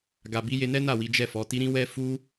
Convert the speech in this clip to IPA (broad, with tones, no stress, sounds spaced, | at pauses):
ɡ a˧ b i˦ j e˧ n ɛ˦ n a˦˨ w i˨˦ d͡ʒ ɛ˦˨ f ɔ˨˦ t i˦ ɾ ĩ˦ w ɛ˦ f u˦